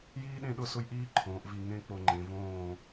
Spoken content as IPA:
j iː˥ ɗ ẽ˥˧ ɗ ʊ˥˧ s ʊ˥ j ʔ iː˥ ǃʰ õː˩˧ ʔ v i˧˩ ŋ ẽ˥ k͡p o˧ ŋ͡ǃ ẽ˩˧ v õː˧˩

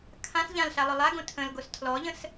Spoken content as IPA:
kʰ ã s ʎ ã l ɬ a lˠ ʊ lˠ a ɡ õ tʰ ə̃ l ɡ o s tʰ l ɔ ʎ ə̃ s

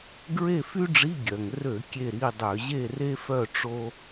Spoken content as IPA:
ɡ ɹ e˥˨ f y˥ ɖ͡ʐ i˧˥˧ ɡʲ œ˩ ŋ r ø˧˩˧ kʲ e˥˨ ɾ i˧˥˧ dˤ ø˧˩˧ ʑ e˥˨ r e˥ f œ˥˨ ʈ͡ʂ o˥

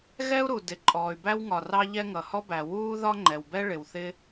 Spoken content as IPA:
ɣ ɛ˥ u̯ ɾ u˩ d ɪ˩ ǃʼ ɔː˩ y̯ b æ˥ w ŋ ɒ˩ r ɑ˥ ʎ ɛ˥ ŋ ʌ˩ h ɔ˥ b æ˩ w uː˥ ð ɒ˥ ŋ͡ǃ ɛ˩ w b ɛ˥ ɭ ɪ˩ w θ ɪ˥

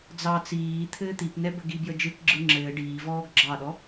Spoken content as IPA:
d͡z ɑ t͡s iː t̪ʰ ɘː t̪ i p n ɛ b ɘ ɡ i b j ə d͡ʒ ɯ k ɡ͡ǁ ɯ ŋ͡ǁ ɘː ɖ iː v ɔː ɡ ɡ͡ǁ ɑ ɗ ɔ

